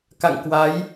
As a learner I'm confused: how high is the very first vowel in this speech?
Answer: low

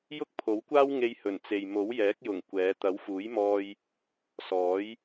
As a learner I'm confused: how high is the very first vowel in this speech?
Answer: high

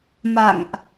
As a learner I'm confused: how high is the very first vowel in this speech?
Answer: low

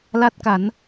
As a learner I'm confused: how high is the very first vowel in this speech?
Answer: low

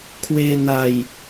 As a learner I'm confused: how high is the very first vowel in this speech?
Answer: mid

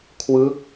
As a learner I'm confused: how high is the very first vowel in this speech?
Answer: high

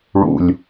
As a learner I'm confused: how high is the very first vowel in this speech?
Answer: high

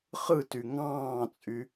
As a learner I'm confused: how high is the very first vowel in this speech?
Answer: high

